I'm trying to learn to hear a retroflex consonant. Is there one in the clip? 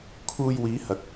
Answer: no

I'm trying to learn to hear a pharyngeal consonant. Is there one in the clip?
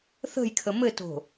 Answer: no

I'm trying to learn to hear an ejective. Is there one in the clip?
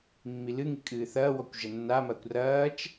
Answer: yes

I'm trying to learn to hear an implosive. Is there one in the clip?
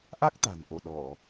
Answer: yes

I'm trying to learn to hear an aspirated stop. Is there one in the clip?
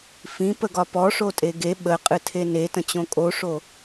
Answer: yes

